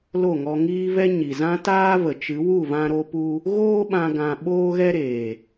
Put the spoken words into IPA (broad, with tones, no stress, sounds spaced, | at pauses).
l o˦˨ ŋ ɔ˧ ŋ iː˦ v ɛ˦ ɲ i˨ z ã˦ t aː˦ v ə˨ t͡ʃ ɨ˨˦ w u˦˨ v ã˧ ɾ o˧ p u˧ | ɣ oː˦ ɓ ã˧ ɡ ã˧ ɓ oː˦ ɣ ɛ˦ ɾ eː˨